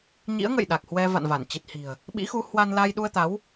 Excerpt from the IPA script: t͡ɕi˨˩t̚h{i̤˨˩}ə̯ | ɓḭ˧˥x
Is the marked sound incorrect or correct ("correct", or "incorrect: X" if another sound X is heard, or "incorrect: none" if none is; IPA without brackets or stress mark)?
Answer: correct